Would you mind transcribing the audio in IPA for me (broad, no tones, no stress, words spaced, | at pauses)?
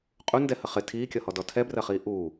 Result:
qʼundɛhə χɪ tʰiːkʲʌhɔdɔ tʰɛbrɜχiː ʔuː